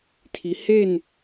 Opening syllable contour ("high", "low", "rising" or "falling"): low